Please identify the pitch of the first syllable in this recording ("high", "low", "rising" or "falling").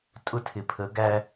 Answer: high